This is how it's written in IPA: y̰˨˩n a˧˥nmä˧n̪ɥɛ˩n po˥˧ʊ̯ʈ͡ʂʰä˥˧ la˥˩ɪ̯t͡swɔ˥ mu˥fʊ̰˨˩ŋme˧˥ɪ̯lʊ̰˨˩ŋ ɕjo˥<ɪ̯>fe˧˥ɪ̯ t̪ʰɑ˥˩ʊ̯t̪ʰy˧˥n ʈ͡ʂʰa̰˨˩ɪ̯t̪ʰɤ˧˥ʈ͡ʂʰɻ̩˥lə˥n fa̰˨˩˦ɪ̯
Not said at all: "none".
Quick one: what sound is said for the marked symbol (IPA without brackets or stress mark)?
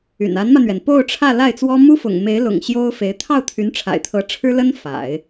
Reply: ʊ̯